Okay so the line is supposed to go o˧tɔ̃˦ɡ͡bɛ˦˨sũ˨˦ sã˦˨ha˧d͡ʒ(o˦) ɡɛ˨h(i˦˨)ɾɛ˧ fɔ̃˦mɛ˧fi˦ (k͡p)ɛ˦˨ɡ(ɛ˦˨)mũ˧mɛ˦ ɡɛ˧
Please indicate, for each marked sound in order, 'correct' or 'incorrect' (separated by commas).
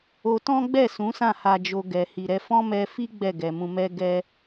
incorrect, incorrect, incorrect, incorrect